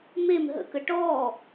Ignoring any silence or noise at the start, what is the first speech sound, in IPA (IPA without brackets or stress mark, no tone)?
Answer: m